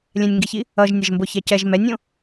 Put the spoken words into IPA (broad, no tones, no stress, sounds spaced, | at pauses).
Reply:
lʲ ɛ̃ nʲ ŋ ɡ i ç i | ʌ ʒ nʲ ɛ ʒ m b o ç ɛ c ɛ ʒ m ɛ nʲ õ